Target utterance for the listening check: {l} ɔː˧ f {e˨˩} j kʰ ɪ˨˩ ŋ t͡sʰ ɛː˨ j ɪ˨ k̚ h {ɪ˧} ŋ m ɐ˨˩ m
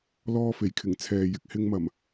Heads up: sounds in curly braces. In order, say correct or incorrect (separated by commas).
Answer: correct, correct, correct